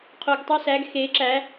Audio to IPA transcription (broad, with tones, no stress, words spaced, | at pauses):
qʰo˨˩ɡtˤo˧sæ˩˧ɡ xe˩˧ǁæ˩˧